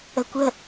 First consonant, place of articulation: velar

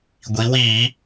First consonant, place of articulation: velar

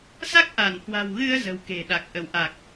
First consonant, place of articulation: alveolar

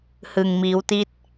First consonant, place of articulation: glottal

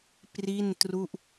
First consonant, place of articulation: labial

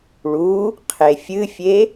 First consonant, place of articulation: retroflex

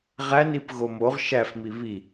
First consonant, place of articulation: uvular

